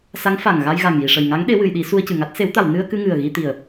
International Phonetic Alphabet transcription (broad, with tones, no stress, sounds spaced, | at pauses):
s a˧˥ ŋ f a˨˩ ŋ ɣ a˧ j ɣ a˨˩ ŋ j i˨˩ ʂ ə˨˩ j ŋ a˧˥ ŋ ɗ e˧˥ w ɨ˨˩˨ j ɗ i˨˩˦ s u˧ ə̯ c ɨ˨˩ ŋ a˦˥ t̚ s e˨˩˦ w t̪ a˨˩˨ w n ɨ˧ ə̯ k ɨ˧ ŋ ɨ˨˩ ə̯ ɣ i˧ t̪ i˨˩ ə̯